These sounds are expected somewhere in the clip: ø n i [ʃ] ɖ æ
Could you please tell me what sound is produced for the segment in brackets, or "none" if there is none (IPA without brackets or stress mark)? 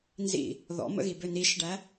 ʃ